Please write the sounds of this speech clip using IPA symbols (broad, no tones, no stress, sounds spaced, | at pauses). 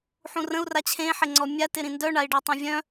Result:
ħ ũ r ə̃ u̯ r a t͡ɕʰ ẽ ħ ɪ ŋ͡ǀ ɔ mʲ a t ɪ ɾ ĩ n d œ ɳ a i̯ ɖ e tˤ ẽ vʲ œ̃